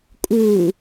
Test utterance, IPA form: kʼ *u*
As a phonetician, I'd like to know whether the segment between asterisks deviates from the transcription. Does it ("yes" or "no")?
yes